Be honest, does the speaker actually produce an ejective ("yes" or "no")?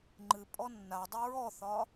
yes